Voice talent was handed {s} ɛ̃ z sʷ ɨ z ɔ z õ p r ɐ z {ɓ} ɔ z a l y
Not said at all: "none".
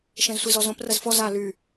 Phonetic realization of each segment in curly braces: ʃ, f

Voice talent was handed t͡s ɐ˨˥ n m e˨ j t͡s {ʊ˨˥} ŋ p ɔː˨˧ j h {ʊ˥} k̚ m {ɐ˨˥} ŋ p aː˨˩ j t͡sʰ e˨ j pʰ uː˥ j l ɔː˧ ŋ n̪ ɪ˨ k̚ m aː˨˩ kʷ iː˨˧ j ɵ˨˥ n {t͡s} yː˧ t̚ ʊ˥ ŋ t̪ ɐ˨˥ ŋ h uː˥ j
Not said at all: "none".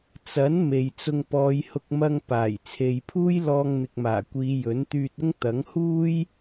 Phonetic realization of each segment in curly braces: ʊ˧, ʊ˧, ɐ˧, t̪

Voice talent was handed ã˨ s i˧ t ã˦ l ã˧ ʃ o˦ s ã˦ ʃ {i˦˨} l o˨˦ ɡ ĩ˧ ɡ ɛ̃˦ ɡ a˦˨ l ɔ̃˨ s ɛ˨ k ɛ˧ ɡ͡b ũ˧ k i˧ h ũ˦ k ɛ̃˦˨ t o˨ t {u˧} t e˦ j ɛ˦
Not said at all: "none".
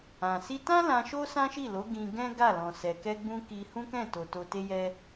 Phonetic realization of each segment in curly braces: i˦˨, o˧

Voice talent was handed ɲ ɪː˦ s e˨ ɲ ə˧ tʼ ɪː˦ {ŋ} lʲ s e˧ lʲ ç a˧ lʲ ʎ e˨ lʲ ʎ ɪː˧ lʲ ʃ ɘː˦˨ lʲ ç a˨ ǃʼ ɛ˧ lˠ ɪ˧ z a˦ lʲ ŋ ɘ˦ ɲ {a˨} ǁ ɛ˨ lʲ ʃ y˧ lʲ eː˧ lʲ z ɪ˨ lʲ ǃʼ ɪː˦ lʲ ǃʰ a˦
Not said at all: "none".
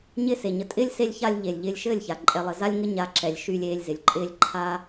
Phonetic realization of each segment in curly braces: none, a˧

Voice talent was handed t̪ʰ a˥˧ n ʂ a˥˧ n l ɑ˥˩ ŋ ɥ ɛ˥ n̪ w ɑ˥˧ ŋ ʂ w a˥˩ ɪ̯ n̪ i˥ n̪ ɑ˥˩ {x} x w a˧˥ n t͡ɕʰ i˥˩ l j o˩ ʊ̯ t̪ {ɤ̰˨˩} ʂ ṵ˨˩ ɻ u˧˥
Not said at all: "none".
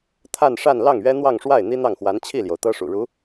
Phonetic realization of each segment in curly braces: ŋ, ɤ˥

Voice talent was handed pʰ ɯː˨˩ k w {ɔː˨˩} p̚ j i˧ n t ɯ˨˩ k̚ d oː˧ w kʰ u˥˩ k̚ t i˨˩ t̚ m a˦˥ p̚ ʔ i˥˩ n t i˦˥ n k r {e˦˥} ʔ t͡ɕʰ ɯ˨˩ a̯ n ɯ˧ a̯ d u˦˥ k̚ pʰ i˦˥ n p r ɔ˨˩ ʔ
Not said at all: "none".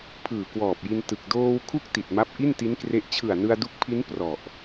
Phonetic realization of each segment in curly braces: ɔː˨˩, e˦˥

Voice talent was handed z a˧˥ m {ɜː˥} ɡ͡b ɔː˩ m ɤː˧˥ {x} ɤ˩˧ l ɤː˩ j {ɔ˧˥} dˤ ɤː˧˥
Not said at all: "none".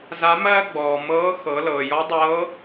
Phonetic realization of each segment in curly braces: ɜː˥, x, ɔ˧˥

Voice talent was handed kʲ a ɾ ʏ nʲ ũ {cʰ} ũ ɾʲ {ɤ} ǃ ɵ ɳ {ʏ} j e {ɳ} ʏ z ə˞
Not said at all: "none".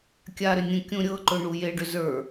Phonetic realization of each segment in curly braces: kʲ, ɤ, u, ɖ

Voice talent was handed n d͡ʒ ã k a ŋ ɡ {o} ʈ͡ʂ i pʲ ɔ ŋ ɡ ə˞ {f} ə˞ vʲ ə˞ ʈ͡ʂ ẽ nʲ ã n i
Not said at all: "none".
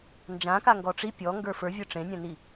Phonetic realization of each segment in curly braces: ɔ, f

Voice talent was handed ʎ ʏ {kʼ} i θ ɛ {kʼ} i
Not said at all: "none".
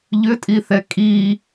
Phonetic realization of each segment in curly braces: tʼ, kʼ

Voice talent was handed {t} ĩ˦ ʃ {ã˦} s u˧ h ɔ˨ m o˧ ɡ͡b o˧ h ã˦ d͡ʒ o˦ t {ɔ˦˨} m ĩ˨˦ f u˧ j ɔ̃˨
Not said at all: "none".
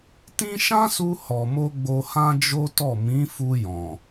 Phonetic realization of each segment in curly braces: t, ã˦, ɔ˦˨

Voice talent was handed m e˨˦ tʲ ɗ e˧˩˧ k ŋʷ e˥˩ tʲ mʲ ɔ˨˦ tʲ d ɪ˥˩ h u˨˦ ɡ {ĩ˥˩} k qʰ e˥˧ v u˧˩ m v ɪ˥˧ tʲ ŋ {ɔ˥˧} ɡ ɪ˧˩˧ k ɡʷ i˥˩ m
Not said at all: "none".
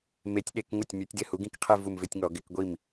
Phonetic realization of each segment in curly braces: ĩ˥˩, ɔ˧˩˧

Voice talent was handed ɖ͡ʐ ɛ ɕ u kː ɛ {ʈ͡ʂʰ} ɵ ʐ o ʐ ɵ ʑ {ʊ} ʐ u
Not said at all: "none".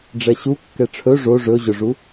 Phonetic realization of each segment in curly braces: ʈ͡ʂʰ, ʊ

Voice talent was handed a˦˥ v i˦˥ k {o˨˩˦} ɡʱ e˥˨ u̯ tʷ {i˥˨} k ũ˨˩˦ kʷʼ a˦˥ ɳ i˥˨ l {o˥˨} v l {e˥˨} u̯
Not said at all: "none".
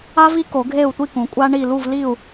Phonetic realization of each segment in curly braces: o˨˩˦, i˥˨, u˥˨, i˥˨

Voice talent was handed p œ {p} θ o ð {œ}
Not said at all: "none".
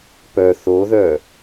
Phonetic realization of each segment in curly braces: none, œ

